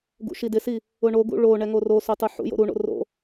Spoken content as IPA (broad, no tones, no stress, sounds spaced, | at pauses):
ɡ ṵ ʃ i d ɪ s i | ʊ ɳ o ɡ ṵ ɭ o ɳ ɛ ŋ o r o s o tˤ u ħ ṵ j o̰ ɾ u ɳ o̰ r o̰